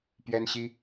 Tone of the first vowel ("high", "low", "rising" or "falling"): high